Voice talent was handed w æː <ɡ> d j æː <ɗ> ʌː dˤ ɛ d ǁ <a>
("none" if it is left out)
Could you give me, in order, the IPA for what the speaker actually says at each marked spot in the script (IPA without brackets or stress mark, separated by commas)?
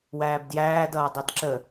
b, d, ə